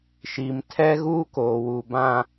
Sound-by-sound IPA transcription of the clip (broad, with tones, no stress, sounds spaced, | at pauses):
ʃ i˨ m tʰ ɛ˦ ɣ uː˦ k oː˨ w u˨ b ã˦